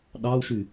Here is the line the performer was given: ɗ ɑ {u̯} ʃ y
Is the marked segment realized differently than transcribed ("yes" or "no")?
no